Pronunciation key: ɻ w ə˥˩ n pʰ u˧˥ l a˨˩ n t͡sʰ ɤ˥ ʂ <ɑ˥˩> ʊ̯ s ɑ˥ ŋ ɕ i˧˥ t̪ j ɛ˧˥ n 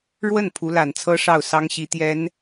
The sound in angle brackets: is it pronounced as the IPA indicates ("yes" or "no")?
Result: yes